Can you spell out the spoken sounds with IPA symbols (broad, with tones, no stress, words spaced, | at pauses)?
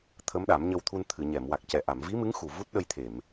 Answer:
t̪ʰə˧˥mɗa˨˩˦mɲə˧wt̪ʰu˧n t̪ʰɨ˨˩˨ɲɛ˨˩˨m wa˨˩k̚cɛ˨˩ ʔa˨˩˨mvi˧˥mɨ˧˥ŋxu˨˩ vu˦˥t̚ɗə˧jt̪ʰe˨˩˨m